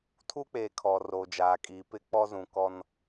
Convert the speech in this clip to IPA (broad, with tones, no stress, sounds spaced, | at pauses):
tʰ u˦ k͡p eː˨ kʰ ɔ˨ r o˨ d͡ʒ aː˨ kʼ iː˨ p ɪ˦ k͡p ɔ˦ z ũ˨ k ɔ˦ n